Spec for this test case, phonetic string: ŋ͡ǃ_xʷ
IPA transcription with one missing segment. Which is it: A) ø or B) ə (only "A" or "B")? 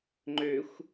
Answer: A